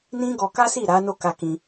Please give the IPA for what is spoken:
n ĩ˦ ɡ ɔ˧ k a˦ s i˦˨ ɾ a˨˦ n o˦˨ k a˧ k ĩ˧

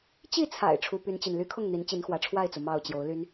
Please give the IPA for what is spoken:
t͡ɕ i˥˨ t͡sʰ a̰˨˩ ɪ̯ ʈ͡ʂʰ u˦ p y˦ n t͡ɕ i˨ n l y˦ kʰ ʊ˥˨ ŋ n̪ i˨˦ n t͡ɕ i˨˦ n x w ä˨˦ ʈ͡ʂʰ w a˥˨ ɪ̯ t͡s u˩ m ɑ˥˨ ʊ̯ t͡ɕ j o˨˦ ʊ̯ l y˦ n

